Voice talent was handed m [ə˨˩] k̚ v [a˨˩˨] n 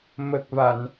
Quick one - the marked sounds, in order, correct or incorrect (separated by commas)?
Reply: correct, correct